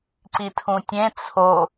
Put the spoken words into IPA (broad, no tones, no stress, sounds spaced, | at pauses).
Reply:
ǀ i tʰ ũ tʲ ẽ t͡sʰ o